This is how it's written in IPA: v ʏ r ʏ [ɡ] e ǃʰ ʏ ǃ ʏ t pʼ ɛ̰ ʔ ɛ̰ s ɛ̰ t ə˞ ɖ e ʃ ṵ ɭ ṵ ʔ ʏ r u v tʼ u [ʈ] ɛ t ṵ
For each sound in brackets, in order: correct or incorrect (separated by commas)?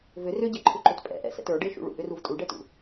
incorrect, incorrect